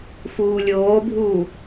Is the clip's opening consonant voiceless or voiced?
voiceless